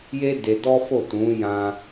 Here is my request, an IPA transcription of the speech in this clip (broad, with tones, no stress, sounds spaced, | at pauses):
j e˦ d e˧ d ɔ˦ f o˦˨ t ũ˨˦ j ã˧